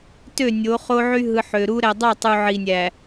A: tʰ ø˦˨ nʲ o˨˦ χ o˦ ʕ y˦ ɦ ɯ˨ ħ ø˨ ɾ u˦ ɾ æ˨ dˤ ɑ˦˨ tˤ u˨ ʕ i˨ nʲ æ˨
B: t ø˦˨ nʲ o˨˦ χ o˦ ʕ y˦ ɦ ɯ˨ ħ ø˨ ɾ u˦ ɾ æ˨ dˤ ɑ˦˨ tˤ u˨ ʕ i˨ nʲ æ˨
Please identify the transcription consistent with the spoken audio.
B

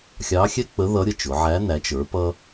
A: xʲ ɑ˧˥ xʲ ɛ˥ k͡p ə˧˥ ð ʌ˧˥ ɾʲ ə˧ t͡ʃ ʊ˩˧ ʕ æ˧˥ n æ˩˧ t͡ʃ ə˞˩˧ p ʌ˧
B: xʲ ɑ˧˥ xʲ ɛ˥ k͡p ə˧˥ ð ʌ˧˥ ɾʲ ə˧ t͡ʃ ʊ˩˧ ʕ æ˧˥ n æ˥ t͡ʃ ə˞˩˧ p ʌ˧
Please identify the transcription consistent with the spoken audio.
A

